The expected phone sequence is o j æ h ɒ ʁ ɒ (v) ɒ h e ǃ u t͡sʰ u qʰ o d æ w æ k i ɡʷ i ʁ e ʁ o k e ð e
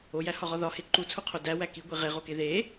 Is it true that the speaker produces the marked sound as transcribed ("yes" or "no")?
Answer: no